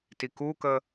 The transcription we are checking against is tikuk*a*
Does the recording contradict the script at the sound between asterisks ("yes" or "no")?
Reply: yes